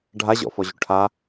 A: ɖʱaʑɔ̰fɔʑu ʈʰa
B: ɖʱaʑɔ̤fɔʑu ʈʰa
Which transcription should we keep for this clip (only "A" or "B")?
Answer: A